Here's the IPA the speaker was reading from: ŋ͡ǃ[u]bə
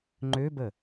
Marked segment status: incorrect: ø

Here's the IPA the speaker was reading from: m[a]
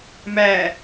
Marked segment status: incorrect: æ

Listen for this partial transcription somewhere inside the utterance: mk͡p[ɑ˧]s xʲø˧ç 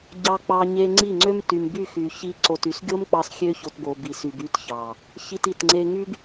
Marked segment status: correct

